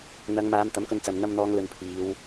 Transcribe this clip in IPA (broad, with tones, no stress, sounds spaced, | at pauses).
n̪ ɐ˨˧ ŋ m aː˨˧ m t̪ ɐ˨˥ m k ɵ˧ n t͡s ɐ˨ m n̪ ɐ˧ m n̪ ɔː˨˧ ŋ l ɵ˨˧ n pʰ iː˨˧ w